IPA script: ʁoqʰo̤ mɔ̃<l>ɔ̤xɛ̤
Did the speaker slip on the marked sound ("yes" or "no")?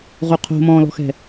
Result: no